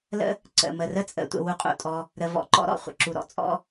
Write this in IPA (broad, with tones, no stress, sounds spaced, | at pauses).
l ə̰˥ | ǀ ə̰˩ m ə˩ r ə˥ t͡sʼ ə̰˦ tʷ ə̰˨ w u˨ qʼ ṵ˩ tʼ ɔ˨ | ɾ ə˨ v ɔ̰˨ ǃ ɔ̰˦ ɾ ɔ̰˩ χʷ ə̰˨ ǁ u˩ ɾ ɔ̰˩ t͡sʼ ɔ̰˦